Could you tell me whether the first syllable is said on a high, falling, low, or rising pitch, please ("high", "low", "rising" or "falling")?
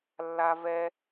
high